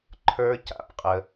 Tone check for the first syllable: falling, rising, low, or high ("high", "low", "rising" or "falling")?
high